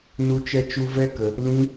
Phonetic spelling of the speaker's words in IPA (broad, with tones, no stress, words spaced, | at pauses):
nu˦t͡ʃɛ˦t͡ʃu˦ vɛ˦kə˧ | lĩ˦